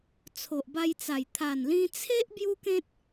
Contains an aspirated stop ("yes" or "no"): yes